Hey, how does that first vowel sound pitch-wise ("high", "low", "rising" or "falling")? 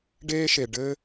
high